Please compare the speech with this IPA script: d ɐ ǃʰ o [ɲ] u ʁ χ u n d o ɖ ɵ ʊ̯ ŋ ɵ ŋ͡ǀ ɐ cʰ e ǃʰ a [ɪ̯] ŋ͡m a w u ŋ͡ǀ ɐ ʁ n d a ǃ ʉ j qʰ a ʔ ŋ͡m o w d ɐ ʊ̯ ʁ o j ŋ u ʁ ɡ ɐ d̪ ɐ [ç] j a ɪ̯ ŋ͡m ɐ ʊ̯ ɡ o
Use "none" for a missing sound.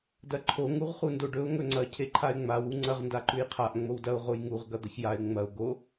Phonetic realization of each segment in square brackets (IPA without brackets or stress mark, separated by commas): ŋ, ɪ̯, ç